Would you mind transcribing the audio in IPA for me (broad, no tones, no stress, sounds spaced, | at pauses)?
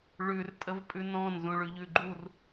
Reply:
ɭ ʉ r tʼ ə v pʼ ʉ n ɔ̃ n z ũ ɭ ʉ ʎ ʉ ɡ͡ǃ u r